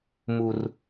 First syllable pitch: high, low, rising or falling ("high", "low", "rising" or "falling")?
low